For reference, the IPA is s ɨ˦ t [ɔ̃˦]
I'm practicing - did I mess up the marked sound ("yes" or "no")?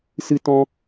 no